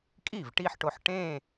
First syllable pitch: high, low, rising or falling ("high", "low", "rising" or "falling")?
falling